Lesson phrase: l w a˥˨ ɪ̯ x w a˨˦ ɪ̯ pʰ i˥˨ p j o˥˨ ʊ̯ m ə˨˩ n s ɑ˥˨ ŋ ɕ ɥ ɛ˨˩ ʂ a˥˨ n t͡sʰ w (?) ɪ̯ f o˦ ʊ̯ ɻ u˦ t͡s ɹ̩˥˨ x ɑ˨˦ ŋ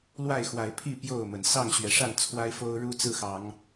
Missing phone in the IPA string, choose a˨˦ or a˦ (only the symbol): a˦